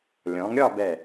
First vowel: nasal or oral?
nasal